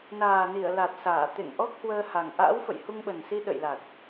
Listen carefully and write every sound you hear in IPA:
n aː˨˩ n i˧˩ ə̯ l a˨˩ t̚ s aː˧˩ t̪ ḛ˧˨ ŋ ʔ ɔ˦˥ k̚ h w əː˧ h a˨˩ ŋ ʔ a̰ː˧˥ w f ə̰˧˨ j h u˧ ŋ ɓ ə˨˩ n s i˧ ɗ ə̰˧˨ j l a˨˩ t̚

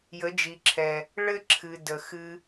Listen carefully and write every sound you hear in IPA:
j ə˨˦ d͡ʒ i˨ ǁʰ ɛ˨ | ɭ ɘ˦ ǁʰ ɨ˨ d ə˨ x ɨ˧

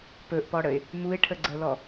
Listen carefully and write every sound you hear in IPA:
p ɵ ʔ p ɔ ɽ ə ɪ̯ | m u ɪ̯ ʈʰ ə ɡ͡ǀ ə l ɔ

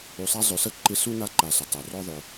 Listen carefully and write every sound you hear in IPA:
u˨ sˤ a˦ zˤ ʏ˨ s ə˥ ǃ ɪ˦ s u˥ n a˦ ǃ a˨ s ʏ˩ tˤ ə˞˩ r ɔ˦ ðˤ ʏ˨

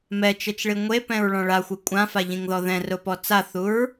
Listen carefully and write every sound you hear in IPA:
m ɛ t͡ʃ ɛ t͡ʃ ɭ i ŋʷ e p ɛ̃ ɹ ɭ ɔ̃ ɭ a xʷ e kʷʼ ã f a ʎ ĩ ŋ ð ɔ ð ɛ̃ r ʊ p ɔ t͡s a θ u ɹ

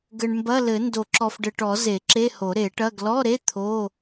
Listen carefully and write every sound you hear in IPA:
ɡ ɘ˨ ɳ m b ɐ˧˥˧ l ɘ˨˩˦ n d o˨˩˦ ǁ ɔ˨ f ɖ ɘ˨ ʈ ɔ˨˩˦ z e˨˩˦ ǁ e˧˥˧ h o˨˩˦ ɾ e˨˩˦ ʈ ɐ˧˥˧ ɡ l ɔ˧˥˧ ɾ e˧˥˧ t̪ʰ o˧˥˧

